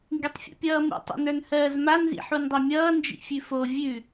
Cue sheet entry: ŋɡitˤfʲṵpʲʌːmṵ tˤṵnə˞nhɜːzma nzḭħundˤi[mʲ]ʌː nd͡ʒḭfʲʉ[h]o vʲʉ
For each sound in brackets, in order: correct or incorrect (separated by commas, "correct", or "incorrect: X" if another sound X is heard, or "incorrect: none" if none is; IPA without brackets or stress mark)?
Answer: correct, incorrect: f